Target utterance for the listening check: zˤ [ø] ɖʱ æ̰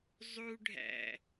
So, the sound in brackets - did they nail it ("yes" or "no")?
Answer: no